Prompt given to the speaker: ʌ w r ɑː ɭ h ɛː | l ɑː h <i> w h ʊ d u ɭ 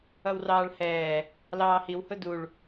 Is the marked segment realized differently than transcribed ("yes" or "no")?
no